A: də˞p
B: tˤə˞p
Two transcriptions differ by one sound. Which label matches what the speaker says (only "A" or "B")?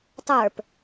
B